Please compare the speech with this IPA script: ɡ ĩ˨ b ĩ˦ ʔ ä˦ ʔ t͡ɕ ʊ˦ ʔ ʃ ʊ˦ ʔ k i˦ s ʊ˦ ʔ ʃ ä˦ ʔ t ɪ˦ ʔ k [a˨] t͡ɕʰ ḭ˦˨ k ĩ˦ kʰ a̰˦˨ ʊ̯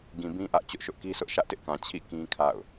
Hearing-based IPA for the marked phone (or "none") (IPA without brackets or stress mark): ã˨